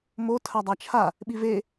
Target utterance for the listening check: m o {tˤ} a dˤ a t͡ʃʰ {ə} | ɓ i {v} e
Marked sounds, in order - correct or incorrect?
incorrect, incorrect, correct

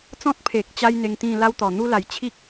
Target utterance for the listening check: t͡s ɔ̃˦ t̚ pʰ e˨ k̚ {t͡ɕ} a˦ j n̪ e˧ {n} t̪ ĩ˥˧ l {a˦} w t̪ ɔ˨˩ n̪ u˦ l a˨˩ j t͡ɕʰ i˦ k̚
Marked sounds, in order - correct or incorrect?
correct, incorrect, correct

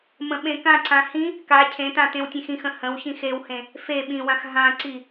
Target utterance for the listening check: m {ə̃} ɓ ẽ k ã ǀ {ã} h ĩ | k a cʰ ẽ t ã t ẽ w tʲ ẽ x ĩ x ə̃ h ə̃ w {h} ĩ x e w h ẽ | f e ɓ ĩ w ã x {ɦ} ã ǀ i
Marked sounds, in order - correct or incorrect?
correct, correct, incorrect, correct

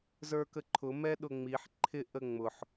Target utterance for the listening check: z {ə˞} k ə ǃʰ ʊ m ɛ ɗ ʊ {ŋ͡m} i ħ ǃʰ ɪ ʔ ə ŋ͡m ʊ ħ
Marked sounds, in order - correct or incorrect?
correct, correct

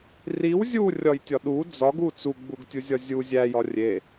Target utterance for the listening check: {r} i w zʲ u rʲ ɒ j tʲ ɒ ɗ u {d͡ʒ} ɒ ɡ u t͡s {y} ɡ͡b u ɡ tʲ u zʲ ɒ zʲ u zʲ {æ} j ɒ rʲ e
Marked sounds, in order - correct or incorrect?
correct, incorrect, incorrect, correct

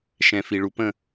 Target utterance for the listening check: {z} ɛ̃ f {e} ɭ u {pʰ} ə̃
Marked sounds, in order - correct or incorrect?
incorrect, incorrect, incorrect

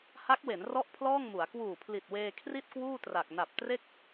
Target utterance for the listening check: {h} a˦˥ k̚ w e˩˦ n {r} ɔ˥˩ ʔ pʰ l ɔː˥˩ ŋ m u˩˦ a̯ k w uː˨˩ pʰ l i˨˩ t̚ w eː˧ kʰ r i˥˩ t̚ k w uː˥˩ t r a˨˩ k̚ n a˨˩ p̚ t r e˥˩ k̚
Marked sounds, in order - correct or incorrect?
correct, correct

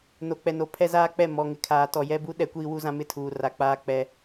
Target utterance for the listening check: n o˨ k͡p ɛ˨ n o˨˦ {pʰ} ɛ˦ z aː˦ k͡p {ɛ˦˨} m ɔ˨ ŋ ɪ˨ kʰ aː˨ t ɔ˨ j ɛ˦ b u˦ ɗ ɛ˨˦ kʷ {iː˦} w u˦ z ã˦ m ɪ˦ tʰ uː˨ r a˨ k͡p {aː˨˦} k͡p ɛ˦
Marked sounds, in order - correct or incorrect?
correct, correct, correct, incorrect

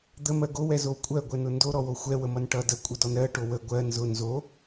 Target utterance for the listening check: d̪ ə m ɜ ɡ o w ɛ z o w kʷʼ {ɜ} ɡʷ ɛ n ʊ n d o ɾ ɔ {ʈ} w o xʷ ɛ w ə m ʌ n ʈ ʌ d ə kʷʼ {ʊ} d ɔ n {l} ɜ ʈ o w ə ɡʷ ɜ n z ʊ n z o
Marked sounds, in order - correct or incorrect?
correct, incorrect, incorrect, incorrect

